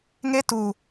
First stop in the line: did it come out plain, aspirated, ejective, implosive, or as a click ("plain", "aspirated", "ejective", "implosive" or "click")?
plain